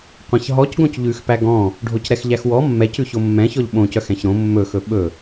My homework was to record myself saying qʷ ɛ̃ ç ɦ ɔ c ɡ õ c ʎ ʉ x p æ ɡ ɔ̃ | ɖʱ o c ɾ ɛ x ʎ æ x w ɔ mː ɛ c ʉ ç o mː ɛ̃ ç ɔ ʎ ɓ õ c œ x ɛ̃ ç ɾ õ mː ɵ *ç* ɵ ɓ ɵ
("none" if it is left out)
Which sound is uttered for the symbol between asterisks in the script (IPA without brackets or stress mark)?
x